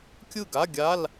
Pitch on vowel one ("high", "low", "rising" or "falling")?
falling